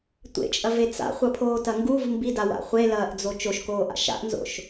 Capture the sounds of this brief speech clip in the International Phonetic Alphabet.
tʷ ḛ t͡ʃʼ ɐ v e t͡s a̰ χʷ ɐ pʰ oː t ɐ ŋ ɡ u v m b i d a w a̰ χʷ e l ɐː ʔ d͡z o t͡ʃ o ʃ k oː ʔ a̰ ʃ a̰ ʔ n z o̰ ʃ

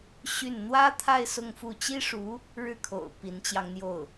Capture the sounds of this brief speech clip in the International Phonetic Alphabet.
ɕ y˥˩ n n̪ w ä˥ t̪ʰ a˥˧ ɪ̯ s ʊ˥˧ ŋ f u˥˩ t͡ɕ i˥ ʂ u˧˥ | ɻ ɻ̩˥˩ kʰ o̰˨˩ ʊ̯ p i˧˥ n t͡ɕ j ɑ˧ ŋ n̪ j o˥˩ ʊ̯

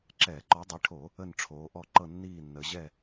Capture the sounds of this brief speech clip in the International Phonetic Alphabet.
ǁ ɛː˧˩˧ ǃ ɔ˨˦ dˤ i˨˦ ʈʰ o˧˩˧ | ə˥˨ n ʈ͡ʂʰ oː˨˦ ʔ ɔ˥˨ ǃ ɤ˥˨ nː iː˥˨ nː ə˨˦ ʑ ɛ˥˨

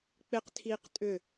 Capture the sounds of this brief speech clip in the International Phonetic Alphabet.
k͡p ɪ q tʰ iː q tʼ ʏ

